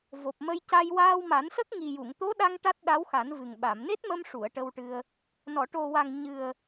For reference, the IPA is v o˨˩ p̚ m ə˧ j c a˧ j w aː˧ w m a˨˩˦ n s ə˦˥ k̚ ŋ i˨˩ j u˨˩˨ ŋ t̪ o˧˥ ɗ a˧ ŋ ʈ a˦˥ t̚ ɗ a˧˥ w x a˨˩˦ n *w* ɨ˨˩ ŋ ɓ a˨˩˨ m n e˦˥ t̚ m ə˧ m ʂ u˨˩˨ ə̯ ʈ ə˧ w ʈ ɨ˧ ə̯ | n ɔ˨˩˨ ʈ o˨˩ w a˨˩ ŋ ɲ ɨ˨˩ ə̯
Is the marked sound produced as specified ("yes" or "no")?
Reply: no